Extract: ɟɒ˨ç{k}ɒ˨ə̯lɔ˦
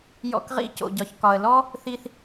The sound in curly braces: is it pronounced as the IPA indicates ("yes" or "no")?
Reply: yes